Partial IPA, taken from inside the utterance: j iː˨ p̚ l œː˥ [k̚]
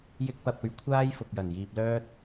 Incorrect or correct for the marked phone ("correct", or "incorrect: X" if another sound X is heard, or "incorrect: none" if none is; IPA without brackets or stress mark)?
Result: incorrect: t̚